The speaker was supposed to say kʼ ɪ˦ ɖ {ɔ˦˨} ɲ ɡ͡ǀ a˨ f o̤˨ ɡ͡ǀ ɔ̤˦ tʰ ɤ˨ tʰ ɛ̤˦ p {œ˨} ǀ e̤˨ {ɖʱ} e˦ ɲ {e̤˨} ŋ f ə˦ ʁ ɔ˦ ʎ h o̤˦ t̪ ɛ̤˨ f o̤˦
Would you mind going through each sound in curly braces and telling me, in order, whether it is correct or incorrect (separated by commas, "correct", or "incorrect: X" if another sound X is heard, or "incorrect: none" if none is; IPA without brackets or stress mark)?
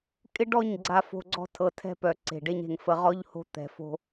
correct, correct, incorrect: ɖ, correct